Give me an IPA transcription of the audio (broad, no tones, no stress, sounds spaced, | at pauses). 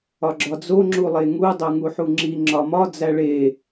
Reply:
ɒ ɡ͡ǁ ɒ d͡z o ŋ͡ǁ u lˠ e ŋ u dˤ o ŋ u ħ u ŋ͡ǁ i ŋ͡ǁ ɒ m ɒ d͡z æ ɭ e